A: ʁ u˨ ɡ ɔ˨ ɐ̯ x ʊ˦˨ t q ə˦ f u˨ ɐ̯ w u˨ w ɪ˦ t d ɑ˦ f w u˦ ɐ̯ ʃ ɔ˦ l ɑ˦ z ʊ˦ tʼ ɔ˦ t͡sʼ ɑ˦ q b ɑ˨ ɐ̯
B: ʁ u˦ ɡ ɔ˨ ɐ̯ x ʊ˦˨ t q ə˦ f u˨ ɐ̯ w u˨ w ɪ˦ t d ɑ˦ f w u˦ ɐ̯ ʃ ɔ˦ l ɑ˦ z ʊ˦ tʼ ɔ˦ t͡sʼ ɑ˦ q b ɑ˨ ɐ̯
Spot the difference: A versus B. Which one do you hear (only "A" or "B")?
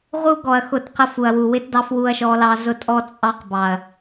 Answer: B